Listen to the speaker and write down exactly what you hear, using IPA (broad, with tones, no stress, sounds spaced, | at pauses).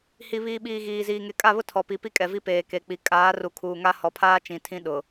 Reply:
h i˨ β iː˨ ɓ iː˨ ɣ iː˨ z iː˨ ŋ e˨ kʼ a˦˨ β ʊ˦ tʰ ɔ˨ p i˨ p i˦ kʼ ɛ˨ v i˦ p eː˨ k e˨ k͡p i˨ kʼ aː˨˦ r u˨ kʰ uː˨ ŋ a˦ h ɔ˨ pʰ aː˦ t͡ʃ ĩ˨ tʰ ĩ˦ ɗ ʊ˨